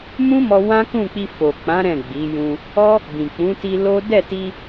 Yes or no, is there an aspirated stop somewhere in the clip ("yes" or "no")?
no